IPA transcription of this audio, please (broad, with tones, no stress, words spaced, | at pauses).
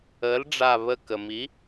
əː˩˥lɖ͡ʐa˧˩βə˧˩ kə˩mi˩˥